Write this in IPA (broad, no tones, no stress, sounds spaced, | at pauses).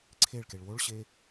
ǀʰ e ɭ k e ɭ w o ɭ ɕ e